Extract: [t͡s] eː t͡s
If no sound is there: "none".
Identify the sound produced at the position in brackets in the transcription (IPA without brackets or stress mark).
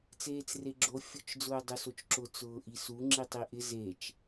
t͡s